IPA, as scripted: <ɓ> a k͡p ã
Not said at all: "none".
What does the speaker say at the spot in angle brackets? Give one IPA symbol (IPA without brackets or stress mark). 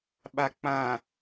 ɓ